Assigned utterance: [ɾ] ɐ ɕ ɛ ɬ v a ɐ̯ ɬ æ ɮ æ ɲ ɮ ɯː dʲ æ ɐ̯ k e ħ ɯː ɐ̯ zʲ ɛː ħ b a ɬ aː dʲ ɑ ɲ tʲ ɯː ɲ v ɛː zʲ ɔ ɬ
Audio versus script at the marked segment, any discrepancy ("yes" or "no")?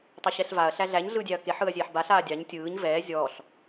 yes